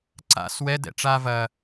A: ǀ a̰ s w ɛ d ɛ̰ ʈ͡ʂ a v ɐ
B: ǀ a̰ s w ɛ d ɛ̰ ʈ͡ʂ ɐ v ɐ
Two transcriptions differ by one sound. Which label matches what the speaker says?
A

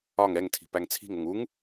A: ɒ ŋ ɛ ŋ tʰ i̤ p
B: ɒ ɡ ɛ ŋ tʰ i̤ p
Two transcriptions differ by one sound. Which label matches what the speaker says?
A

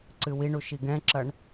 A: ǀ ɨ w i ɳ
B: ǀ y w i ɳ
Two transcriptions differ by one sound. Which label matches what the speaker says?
A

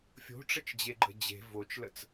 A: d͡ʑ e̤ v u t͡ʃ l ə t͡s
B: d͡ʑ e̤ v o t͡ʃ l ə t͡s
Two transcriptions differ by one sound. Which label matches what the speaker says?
B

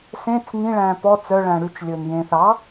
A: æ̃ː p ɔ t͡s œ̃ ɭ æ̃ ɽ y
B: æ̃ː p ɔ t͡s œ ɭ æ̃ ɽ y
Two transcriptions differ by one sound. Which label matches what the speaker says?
B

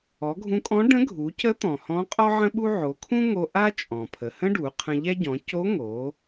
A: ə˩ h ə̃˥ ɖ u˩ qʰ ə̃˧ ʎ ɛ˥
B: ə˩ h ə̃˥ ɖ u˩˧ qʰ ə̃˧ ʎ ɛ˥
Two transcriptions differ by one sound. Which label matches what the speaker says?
B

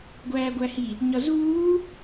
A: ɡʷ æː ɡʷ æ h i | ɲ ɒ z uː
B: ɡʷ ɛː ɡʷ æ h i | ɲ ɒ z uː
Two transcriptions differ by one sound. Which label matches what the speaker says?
A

